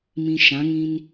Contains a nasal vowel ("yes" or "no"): yes